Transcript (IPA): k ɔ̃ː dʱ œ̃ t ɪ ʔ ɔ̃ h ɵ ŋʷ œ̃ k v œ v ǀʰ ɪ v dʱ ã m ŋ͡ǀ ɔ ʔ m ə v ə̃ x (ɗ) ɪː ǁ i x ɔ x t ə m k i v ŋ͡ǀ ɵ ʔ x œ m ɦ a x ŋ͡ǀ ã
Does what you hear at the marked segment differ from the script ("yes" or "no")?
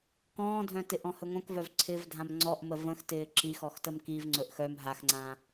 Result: yes